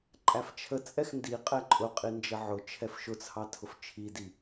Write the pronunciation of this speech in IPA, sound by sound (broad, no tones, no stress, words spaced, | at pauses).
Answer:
ǃʼæft͡ʃʰət͡sʼɛx ndi qʼɛǃʼʊqʼi nd͡ʒəʕʊt͡ʃʰɛf ʃʊt͡sʰɑ tʰʊft͡ʃʰidi